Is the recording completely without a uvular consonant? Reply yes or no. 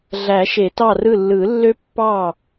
yes